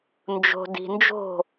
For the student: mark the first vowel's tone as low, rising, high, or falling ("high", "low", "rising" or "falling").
low